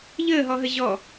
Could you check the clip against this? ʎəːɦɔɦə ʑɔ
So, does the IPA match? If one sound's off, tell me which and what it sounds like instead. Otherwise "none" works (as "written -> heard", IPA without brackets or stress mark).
none